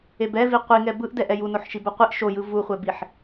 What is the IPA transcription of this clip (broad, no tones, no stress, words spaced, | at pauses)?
ebɛ viqʷi ŋɛbɯʔdɛʔ ɛjunoħʃib oqʷiʔ ʃojɯ vuχʷɛbiħ